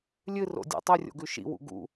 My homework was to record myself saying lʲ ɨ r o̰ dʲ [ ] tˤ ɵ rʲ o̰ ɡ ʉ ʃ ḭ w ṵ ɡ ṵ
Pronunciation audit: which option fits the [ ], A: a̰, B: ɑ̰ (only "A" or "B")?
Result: A